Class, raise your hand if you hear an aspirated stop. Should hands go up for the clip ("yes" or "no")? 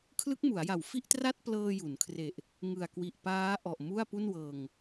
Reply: yes